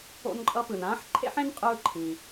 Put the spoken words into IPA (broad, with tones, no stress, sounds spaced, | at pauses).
o̰˧ n ǃʼ ʌ˧ p ɯ˩ n ãː˥ ħ ǃʰ ḛ˥ ħ ẽ˥ n qʼ ɯː˧ ǃʰ ĩ˩